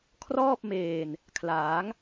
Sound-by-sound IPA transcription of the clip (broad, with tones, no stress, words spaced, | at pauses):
kʰrɔː˥˩p̚meː˨˩n | kʰlaː˩˦ŋ